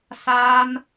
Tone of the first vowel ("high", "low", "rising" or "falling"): high